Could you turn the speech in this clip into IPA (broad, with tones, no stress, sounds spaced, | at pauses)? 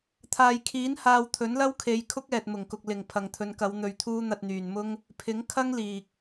t̪ʰ aː˨ j kʰ iː˨˥ n h aː˧ w t̪ʰ ɵ˨˥ n l ɐ˥ w kʰ e˨˧ j kʰ ʊ˥ k̚ ɛː˨ t̚ m ʊ˨˩ ŋ k ʊ˨ k̚ l ɪ˨˩ ŋ pʰ ɐ˨ ŋ t̪ʰ ɵ˨˧ n k ɐ˨˧ w n̪ ɵ˧ ɥ t̪ʰ uː˥ n̪ ɐ˧ t̚ n̪ yː˨ n m ʊ˥ ŋ | pʰ ɪ˨˥ ŋ kʰ ɐ˥ ŋ l iː˨ k̚